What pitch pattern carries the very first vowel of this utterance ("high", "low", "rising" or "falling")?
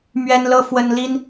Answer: high